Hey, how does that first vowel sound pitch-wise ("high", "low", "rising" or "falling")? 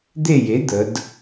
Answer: falling